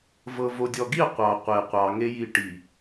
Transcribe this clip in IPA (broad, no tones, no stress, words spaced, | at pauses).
vɤvodʲɔɡi qʷɑ qʷe qʷɑŋeji ʈi